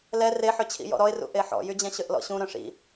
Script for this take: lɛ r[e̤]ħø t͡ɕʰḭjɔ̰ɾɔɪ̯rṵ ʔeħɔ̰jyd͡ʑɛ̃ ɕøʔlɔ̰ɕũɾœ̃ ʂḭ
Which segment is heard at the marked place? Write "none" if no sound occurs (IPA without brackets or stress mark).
e